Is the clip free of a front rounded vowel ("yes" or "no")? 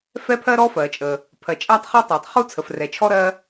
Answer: yes